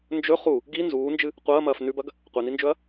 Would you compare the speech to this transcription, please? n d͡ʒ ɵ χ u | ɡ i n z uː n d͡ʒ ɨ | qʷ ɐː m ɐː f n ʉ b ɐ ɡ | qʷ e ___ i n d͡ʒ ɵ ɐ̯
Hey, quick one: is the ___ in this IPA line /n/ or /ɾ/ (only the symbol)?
n